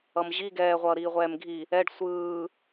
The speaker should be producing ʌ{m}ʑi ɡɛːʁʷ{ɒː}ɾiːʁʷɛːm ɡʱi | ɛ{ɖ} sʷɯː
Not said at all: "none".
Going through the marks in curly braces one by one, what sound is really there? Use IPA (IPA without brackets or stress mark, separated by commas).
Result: m, ʌː, ɖ